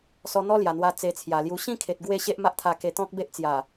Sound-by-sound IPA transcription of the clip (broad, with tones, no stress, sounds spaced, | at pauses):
s ɔ˧ n̪ ɔ˦ l j a˨˩ n̪ w a˧ t͡s e˧ t͡sʰ j a˨˩ l j u˧ ɕ ĩ˥˧ kʰ e˨ t̚ ɡ w e˥˧ ɕ e˦ ʔ m a˦ ʔ t̪ʰ a˧ k e˧ t̪ ɔ̃˦ k̚ b e˦ ʔ t͡s j a˨˩